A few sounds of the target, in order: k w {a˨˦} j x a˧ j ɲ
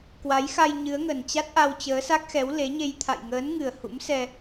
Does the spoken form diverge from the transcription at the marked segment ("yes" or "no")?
no